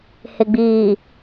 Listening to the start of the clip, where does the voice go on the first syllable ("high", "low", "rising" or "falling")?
low